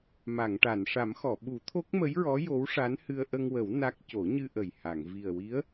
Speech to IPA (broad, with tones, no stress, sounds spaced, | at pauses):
m a˨˩˨ ŋ ʈ a˨˩˨ n ʂ a˨˩˦ m x ɔ˨˩˨ ɓ u˨˩˦ t̪ʰ o˦˥ k̚ m ə˧˥ j ɹ ɔ˧˥ j o˧˥ w ʂ a˧˥ n h ɨ˧ ə̯ ʔ ə˧ ŋ w ə˨˩˦ w n a˦˥ k̚ c o˨˩˦ ɲ ɨ˧ ʔ ə˨˩ j h a˨˩˨ ŋ v i˨˩ ə̯ w i˧˥ ə̯